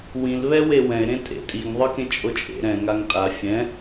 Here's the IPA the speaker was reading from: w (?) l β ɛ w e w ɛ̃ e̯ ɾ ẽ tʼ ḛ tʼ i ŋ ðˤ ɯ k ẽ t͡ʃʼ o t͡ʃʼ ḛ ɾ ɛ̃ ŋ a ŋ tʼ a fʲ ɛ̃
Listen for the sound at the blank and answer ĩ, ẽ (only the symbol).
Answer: ĩ